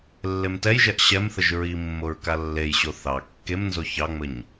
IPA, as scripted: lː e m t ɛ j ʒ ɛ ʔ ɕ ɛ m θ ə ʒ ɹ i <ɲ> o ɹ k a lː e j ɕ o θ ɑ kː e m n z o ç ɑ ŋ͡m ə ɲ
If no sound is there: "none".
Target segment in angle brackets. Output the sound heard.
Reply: mː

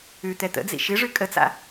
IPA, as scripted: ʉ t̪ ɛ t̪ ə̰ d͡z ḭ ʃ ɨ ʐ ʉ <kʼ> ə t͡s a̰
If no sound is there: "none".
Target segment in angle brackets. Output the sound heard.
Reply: kʼ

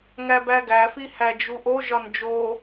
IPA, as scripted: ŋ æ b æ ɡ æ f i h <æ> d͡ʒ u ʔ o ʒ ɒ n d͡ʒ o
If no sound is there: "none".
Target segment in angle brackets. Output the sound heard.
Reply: æ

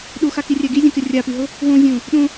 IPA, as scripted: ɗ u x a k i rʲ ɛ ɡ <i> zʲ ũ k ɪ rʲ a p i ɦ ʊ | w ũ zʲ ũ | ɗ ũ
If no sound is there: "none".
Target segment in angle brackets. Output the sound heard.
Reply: i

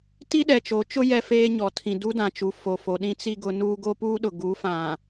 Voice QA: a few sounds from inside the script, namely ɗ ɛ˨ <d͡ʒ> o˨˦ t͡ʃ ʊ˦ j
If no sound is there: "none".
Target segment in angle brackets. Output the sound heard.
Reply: t͡ʃ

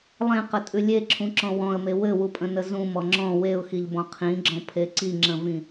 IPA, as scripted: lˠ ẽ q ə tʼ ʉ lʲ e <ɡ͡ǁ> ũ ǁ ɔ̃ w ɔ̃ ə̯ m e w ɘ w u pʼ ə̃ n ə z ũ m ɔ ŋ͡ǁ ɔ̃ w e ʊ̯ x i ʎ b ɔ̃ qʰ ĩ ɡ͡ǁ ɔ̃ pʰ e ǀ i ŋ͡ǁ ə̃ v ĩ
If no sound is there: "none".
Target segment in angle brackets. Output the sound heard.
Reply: ǁʰ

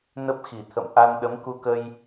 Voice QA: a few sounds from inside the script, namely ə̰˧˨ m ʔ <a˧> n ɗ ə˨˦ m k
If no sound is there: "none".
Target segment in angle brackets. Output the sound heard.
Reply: a˧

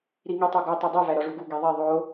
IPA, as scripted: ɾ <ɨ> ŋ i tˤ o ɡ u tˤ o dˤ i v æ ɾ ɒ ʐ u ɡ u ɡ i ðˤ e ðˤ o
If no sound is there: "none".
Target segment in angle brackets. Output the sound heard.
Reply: i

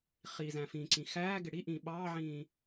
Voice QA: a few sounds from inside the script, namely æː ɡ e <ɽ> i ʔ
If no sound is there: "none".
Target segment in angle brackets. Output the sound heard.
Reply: ɽ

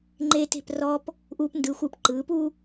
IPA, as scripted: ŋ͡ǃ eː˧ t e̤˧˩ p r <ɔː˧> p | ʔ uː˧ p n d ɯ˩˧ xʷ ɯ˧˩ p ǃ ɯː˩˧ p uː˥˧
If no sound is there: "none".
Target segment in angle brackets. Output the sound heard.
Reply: ɔː˧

